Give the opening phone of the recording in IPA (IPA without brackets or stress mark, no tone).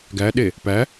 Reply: ɡ